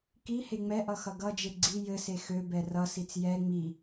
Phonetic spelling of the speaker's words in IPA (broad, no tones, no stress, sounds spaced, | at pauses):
k i h e ŋ͡m ɛ ʔ ʌ x ʌ ɡ ʌ d͡ʒ e ɡ͡ǀ i j ɘ s e x ø b ɛ r ʌ s i t͡s j ɛ ŋ͡m i